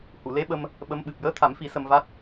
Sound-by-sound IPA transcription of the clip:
h u˨˩˨ l e˧˥ ɓ ə˧ m | ɓ ə˧˥ m ɓ ɨ˨˩ p̚ j əː˧˥ t̪ʰ a˨˩˦ m f i˨˩˦ s ə˧ m v a˦˥ t̚

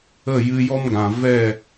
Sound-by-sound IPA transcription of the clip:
ə˦˨ j ɨ˧ j ɔ˦ m ɡ ã˨ v ɛ˦˨

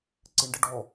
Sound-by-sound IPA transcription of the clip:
ǀ ɪ ɳ ɖ ɪ ɖ ɔ

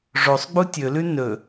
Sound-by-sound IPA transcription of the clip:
ʐ o sˤ ɡ͡b u tʲ ɵ l ʉ n ɵ

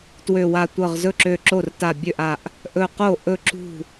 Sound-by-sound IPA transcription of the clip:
t w ø˧˩ w a˧˩ tʷ ɤ˧˩ ʁ z ɵ˥˩ ǁ ø˧˩ ǁ o˥˩ r t a˧˩ bʲ ø˥˩ ʔ a˧˩ ʔ | ʔ ɵ˧˩ q o˥˩ ʔ ɵ˥˩ ǁ ṳ˥˩

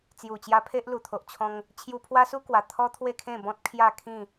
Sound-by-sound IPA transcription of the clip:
t͡s j u˨˩ t͡ɕ j a˧ pʰ e˦ ʔ l u˨˩ t̪ʰ o˨ ʔ t͡ɕʰ ɔ̃˧ ŋ | t͡ɕʰ j u˧ pʰ w a˦ s u˦ k w a˨˩ t̪ʰ ɔ˦ t̪ʰ w e˥˧ kʰ ẽ˥˧ b ɔ̃˦ t̚ kʰ j a˥˧ kʰ ĩ˥˧

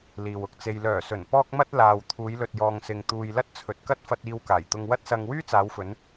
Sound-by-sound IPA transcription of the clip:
l iː˨ w ʊ˨ k̚ t͡s e˧ j l œː˨˩ s ɵ˨˩ n p ɔː˧ k̚ m ɐ˧ t̚ l aː˨ w t̪ʰ uː˨˧ j l ɵ˨ t̚ j ɔː˨ ŋ s ɪ˨ ŋ t̪ uː˨ j l ɐ˥ t̚ t͡sʰ ɵ˨ t̚ k ɐ˥ t̚ f ɐ˧ t̚ iː˧ w k aː˨˩ j t̪ ʊ˧ ŋ w ɐ˥ t̚ s ɐ˧ ŋ w yː˥ t͡s aː˨˧ w f ɵ˨˧ n

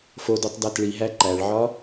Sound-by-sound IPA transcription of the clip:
f o d o tˤ d æ t ɭ i ɦ æ ǃ æ ɭ ʕ ɒ

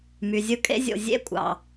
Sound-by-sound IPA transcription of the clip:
m y˩ zʲ ɯ˦ kʼ ḛ˥ zʲ o̰˨ zʲ ḛ˥ kʷʼ ɑ̰˩

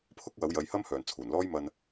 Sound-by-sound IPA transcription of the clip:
pʰ ʊ˥ k̚ w ɐ˨˥ w j ɐ˨˧ j h ɐ˥ m h œː˨˩ n t͡sʰ uː˨˩ n l ɔː˥ j m ɐ˧ n

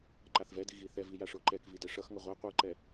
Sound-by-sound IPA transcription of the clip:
ǃ a θ v ɛ d i ɣ i θ ɛ v i j a ʂ o ǃ ɛ k v i d ɛ ʂ ʌ x ŋ ʌ ʁʷ ɛ qʷ ɯ ǃ ɛ

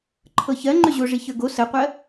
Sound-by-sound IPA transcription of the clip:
ǃʰ ɤ ç ɜ ŋ͡ǃ ʏ ʑ o ʐ i ç ə˞ ɡ o s ə qʷ ɜ

